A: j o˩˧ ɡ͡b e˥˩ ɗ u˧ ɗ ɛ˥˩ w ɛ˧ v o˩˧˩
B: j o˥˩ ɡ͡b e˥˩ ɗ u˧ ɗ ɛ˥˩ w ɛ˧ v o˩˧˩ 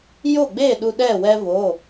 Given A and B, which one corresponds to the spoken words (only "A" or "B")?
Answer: B